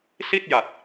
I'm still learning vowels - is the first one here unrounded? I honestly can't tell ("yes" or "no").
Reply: yes